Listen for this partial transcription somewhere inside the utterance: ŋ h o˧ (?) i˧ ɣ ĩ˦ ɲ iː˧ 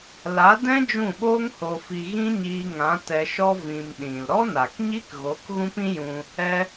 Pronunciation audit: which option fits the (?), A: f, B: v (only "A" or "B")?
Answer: A